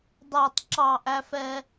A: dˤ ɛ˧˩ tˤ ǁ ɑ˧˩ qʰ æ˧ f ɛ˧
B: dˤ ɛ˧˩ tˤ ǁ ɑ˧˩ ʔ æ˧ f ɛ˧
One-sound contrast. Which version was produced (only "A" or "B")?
B